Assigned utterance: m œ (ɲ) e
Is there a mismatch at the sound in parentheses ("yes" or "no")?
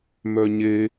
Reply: no